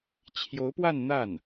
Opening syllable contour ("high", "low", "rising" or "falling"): rising